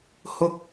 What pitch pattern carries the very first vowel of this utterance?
high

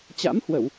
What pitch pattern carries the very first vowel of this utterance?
rising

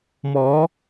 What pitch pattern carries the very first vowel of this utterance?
rising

